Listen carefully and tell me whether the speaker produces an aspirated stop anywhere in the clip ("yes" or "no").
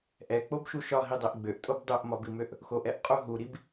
no